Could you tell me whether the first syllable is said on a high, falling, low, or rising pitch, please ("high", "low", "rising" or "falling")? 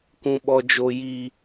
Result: high